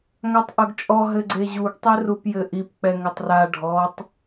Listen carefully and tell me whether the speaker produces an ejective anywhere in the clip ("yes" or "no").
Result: yes